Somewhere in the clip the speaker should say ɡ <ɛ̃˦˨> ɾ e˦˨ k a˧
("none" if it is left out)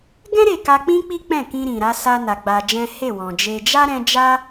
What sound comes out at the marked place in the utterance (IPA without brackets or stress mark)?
ɛ̃˦